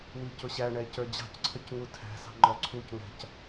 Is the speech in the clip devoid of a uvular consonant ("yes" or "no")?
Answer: yes